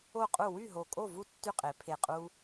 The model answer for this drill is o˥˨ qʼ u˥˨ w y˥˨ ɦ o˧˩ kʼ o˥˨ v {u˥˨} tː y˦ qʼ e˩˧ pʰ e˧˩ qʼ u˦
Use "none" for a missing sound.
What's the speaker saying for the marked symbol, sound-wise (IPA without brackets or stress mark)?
u˥˨